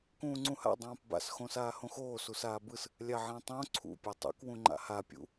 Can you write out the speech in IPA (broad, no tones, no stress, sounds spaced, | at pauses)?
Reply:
k ũː ŋ͡ǀ ũ h a̰ dˤ ãː p b a̰ s x õ s aː h õ x oː s u s aː b ɯ s | lʲ a ʕ ã tˤ õ ǀʰ ṵ pʲ ɯ tˤ ṵ k w ũ ŋ͡ǃ a̰ h a pʲ ṵ